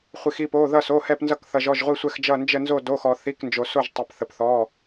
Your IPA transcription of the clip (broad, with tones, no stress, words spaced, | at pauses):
χʷi˧xi˥˧po˧˥˧ ðʌ˥˧so˧˥˧hɛ˥˧pnzʌ˥˧k θʌ˧ʒɔ˧˥˧ʒʁʷi˥˧ sʷɛ˥˧xd͡ʒʌ˥˧ nd͡ʒə˥˧nzo˥˧do˧˥˧xɔ˧ θi˧˥˧knd͡ʒo˧so˥˧ʒ tˤə˧p θə˧pθɔ˧˥˧